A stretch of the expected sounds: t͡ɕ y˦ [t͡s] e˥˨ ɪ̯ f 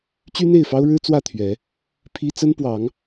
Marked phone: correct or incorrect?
incorrect